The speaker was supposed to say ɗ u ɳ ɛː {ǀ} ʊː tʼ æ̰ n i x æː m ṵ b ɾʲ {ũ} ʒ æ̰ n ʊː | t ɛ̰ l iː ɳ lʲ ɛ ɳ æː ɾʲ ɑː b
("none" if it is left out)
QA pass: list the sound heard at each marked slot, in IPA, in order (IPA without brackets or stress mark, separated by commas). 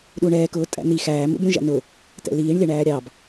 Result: k, ũ